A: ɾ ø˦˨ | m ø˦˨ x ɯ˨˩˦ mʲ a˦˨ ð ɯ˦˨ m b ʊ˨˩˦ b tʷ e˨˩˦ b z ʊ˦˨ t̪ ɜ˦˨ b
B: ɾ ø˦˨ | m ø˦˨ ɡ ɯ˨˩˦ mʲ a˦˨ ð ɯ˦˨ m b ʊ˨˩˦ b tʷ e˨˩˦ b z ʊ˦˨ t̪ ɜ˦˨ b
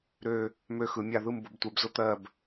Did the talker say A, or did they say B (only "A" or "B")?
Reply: A